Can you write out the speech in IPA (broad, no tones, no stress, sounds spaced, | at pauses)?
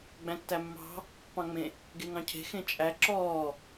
ɡ͡b æ̃ tː æ mː ɑ̤ | p ɑ̃ ŋ͡m ẽ | ɡ e ŋ ɑ̃ cʰ e̤ x ẽ t͡ʃʼ æ ǁ ɔː